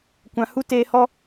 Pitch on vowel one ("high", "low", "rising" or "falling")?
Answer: low